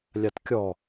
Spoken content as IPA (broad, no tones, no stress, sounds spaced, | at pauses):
lʲ a t kʲ ɔ